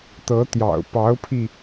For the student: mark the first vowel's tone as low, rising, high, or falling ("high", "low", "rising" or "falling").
rising